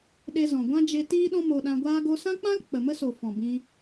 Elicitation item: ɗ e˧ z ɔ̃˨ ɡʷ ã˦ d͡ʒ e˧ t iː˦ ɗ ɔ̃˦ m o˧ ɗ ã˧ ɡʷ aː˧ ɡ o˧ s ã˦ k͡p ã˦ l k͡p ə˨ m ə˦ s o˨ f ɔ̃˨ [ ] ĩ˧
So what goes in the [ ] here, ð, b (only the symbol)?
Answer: b